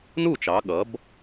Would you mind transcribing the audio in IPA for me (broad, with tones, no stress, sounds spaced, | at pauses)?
n u˥˩ t͡ʃ ɑ˩˧ ɠ ʌ˩˥ b